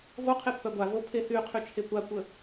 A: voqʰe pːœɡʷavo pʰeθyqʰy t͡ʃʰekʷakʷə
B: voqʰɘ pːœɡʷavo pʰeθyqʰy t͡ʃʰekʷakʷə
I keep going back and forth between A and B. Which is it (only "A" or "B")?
A